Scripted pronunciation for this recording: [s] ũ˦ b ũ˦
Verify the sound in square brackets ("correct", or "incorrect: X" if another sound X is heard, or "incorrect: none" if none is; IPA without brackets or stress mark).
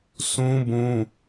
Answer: correct